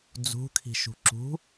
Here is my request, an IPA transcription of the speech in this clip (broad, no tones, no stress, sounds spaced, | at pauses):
d͡z ṳ kʰ i̤ ʃ ṳ ǁ ṳ